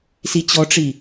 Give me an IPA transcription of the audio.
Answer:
s i t͡ɕ ɔ ʈ͡ʂ i

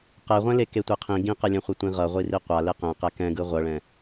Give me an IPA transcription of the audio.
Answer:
q ɛ ʁʷ ɛ̃ l e k e tʷ e qʰ ĩ ɡ ĩ q ɛ lʲ ɛ̃ χʷ ɛ tʷ ĩ ʁ ʌ ʁʷ i r i qʷ a l e q ɛ̃ q ɛ k ɛ̃ ɡ ɯ ʁʷ ʌ ɭ ɛ̃

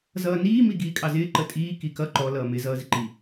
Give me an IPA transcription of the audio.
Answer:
z ʌː n iː m i ɡ iː kʼ ɑ z ɪː ǃ ə tʼ iː k i k ʌ ǃ ɔ l ʌː m ɪ z ʌː z ɪ ǃ i

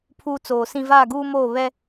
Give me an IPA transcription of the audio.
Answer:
pʰ uː˦ t͡s oː˨ s ĩ˦ v aː˦˨ ɡ uː˦ m oː˦˨ β ɛ˦

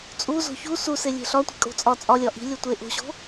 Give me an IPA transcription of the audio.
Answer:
t͡sʼ u z o̤ ç u s u s e lʲ e̤ ɬ ɒ tʷ i̤ kʼ o̤ t͡sʼ ɒ t͡sʼ ɒ lʲ ɒ ʔ i̤ lʲ o tʷ e ʔ o̤ ɕ o̤

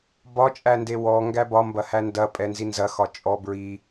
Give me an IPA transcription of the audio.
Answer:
b ɒ t͡ʃʼ æ n d e w ɔ ŋ ɡ æ b ɒ m b ɐ h æ n d ɐ pʼ ɛ n z i n z ɐ x ɒ t͡ʃʼ ɔ b ɹ i

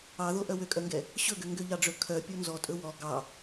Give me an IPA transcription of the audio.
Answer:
ɑ ð o ʔ œ w ø kʼ œ ŋ ɡ ɛ | ɕ ɵ ɡ ø ŋ ɡ ø ʎ ɑ ɖ͡ʐ ɵ kʰ œ pʲ o n z ɔ tʼ ɵ w ɔ ɡ ɑ

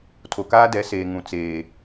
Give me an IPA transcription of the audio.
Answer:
tʰ o˨ k aː˦ d ɛ˨˦ s eː˨ ŋ ũ˨ t͡s eː˨

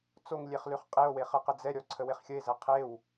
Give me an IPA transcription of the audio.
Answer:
t͡s o ŋ lʲ e χ l ʉ χ qʼ e o̯ w e χ ə q ə d͡z ɛ ɾʲ ɔ ǀʰ ə w e χ xʲ ə e̯ z ɛ qʰ e w

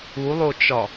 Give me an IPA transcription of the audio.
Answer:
u lˠ o t͡ʃ ɒ

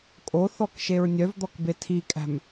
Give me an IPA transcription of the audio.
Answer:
kʼ o θ ɔ k ʃ e ɹ nʲ œ v d̪ ɔ k b e tʰ i kʼ æ̤ m

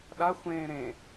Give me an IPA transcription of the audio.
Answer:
ɗ a xʷ ẽː ɾ ẽ

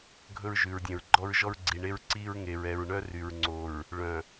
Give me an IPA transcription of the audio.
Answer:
ɡʱ ɵ˦ ɹ ʒ ʉ˨ ɹ dʲ œ̃˨ ɹ ɡ͡ǃ ɔ˦ ɹ ʒ ɔ˦ ɹ ɡ͡ǀ i˨ ɳ e˦ ɹ ǀ i˦ ɹ ŋ e˨ ɹ ɛ˨ ɹ ɳ œ˦ r y˨ ɹ ŋ͡ǀ o˨ ɹ | ɭ œ̃˨

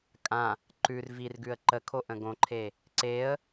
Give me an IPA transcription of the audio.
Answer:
kʼ ã | ǃ ʉ r v i r ɡ ʉ ə̯ ǃ ə kʰ o ʔ ə̃ ɡ õ ǃʰ e | ǀ e ə̯

